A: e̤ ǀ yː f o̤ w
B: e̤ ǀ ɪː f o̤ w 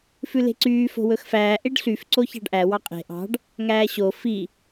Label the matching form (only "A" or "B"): A